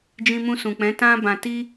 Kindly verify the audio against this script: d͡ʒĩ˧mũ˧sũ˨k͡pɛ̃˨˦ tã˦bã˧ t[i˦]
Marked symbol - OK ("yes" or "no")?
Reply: yes